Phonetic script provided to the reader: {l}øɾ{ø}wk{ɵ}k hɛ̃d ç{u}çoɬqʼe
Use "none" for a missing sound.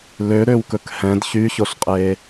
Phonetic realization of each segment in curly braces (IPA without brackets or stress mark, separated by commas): l, ø, ɵ, y